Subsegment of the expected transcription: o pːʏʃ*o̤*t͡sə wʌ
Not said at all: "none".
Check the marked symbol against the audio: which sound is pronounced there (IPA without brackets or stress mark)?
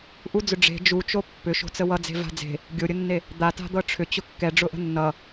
o̤